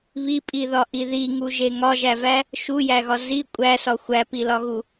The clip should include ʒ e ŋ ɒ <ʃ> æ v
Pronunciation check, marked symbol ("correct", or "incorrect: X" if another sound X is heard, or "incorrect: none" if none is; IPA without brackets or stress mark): incorrect: ʒ